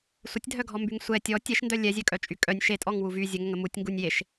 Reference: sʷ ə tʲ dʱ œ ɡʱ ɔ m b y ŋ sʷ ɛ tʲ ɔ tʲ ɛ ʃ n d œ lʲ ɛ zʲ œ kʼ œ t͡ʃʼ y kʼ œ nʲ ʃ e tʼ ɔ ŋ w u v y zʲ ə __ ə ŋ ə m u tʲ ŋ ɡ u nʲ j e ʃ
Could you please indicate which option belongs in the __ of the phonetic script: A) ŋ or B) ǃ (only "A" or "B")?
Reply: A